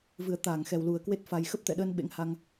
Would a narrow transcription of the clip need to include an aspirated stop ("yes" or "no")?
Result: no